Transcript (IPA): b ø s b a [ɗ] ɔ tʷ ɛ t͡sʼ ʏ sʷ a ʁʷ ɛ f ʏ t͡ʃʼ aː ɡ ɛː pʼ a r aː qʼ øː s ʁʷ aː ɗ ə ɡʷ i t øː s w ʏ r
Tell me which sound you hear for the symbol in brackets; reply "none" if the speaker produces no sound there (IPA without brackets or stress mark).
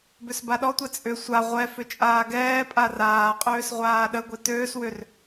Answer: ɗ